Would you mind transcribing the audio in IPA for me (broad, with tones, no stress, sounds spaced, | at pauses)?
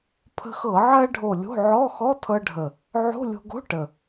pʰ ə̤˧ x ɤ˧˩˧ ʕ ɜ˧ ɖʱ o˨˩ lʲ o̤˧˥˧ ʕ ɔ˧˥˧ x ɔ˧˥˧ tʰ ɤ˧ ɖʱ ə˨˩ | ʕ o̤˧˥˧ lʲ o̤˧ ɡ o̤˧˥˧ ʈ ə˨˩